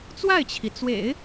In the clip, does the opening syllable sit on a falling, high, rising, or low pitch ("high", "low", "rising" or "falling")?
falling